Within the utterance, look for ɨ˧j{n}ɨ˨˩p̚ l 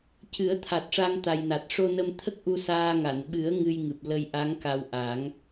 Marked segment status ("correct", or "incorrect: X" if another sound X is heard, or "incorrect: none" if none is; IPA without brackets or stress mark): incorrect: ŋ